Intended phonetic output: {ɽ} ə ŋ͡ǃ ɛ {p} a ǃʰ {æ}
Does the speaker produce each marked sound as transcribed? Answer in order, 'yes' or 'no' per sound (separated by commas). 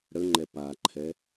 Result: yes, yes, no